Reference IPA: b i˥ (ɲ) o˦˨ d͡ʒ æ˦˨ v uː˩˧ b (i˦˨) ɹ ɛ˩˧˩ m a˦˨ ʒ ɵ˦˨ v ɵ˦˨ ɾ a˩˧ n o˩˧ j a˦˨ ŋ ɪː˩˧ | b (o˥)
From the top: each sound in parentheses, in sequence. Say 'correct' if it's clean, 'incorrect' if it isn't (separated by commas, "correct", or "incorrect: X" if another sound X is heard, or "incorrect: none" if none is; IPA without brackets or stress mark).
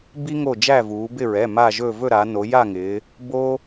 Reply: incorrect: ŋ, incorrect: ɪ˦˨, correct